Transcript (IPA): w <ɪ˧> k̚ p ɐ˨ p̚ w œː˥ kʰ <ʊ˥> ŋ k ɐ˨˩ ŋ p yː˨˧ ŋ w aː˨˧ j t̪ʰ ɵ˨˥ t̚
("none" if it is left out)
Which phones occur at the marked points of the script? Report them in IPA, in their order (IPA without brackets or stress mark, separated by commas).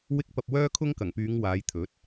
ɪ˧, ʊ˥